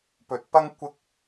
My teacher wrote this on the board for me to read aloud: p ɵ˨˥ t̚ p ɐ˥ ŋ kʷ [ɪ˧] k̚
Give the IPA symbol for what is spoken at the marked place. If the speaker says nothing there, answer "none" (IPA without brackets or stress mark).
ɪ˧